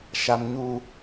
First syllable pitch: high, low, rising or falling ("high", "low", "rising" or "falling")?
low